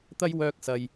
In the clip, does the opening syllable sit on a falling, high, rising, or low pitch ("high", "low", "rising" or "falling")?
high